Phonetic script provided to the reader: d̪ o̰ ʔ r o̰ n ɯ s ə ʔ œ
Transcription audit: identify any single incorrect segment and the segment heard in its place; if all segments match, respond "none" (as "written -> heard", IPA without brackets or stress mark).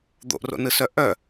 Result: ə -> œ